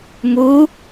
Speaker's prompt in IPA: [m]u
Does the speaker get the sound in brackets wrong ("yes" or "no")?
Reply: no